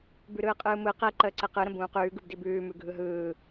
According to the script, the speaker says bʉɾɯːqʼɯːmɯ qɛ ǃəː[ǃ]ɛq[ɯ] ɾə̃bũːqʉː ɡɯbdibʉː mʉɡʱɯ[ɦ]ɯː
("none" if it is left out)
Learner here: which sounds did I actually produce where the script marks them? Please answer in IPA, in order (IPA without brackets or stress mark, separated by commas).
ǀ, ɯ, ɦ